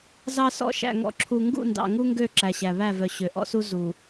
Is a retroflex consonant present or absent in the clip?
absent